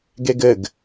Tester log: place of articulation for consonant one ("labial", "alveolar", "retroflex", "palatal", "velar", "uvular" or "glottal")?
velar